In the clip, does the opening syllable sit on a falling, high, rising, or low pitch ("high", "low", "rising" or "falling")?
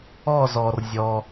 falling